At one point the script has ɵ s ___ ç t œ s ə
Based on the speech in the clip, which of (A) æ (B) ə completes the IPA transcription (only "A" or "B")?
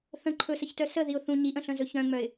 B